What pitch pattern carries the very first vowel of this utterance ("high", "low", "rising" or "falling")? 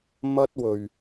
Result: high